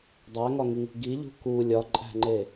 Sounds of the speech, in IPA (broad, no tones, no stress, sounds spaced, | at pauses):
dˤ æ ŋ ɒ ŋ i ŋ ṳ ɡ i ʎ ṳ k u lʲ ɒ ǃʼ æ̤ ŋ͡ǃ e